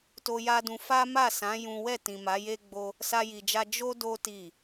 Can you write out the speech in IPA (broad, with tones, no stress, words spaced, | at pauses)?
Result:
to˧ja˦dũ˧ fa˦ma˦˨sã˨˦ jũ˦ wɛ˦˨ tĩ˨ ma˨˦je˦ ɡ͡bo˦ | sa˦ji˧d͡ʒa˦ d͡ʒo˦ do˦ ti˦˨